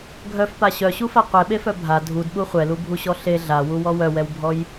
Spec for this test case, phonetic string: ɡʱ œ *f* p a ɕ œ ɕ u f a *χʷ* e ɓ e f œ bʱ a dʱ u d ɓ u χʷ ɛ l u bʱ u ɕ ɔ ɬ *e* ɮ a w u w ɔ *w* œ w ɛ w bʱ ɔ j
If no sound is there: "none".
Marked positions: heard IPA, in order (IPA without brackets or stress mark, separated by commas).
f, qʷ, e, w